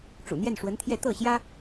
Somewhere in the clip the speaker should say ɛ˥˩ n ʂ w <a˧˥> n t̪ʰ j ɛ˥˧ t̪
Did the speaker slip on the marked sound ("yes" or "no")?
yes